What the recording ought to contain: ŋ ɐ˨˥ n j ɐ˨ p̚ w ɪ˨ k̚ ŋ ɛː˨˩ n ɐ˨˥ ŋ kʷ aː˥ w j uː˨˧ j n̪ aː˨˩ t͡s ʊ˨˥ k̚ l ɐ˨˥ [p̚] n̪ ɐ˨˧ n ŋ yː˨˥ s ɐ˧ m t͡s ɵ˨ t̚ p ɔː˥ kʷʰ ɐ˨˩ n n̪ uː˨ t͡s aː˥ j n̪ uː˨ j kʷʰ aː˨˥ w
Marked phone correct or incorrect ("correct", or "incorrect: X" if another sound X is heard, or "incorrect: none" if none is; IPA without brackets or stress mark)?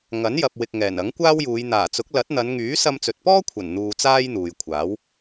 incorrect: t̚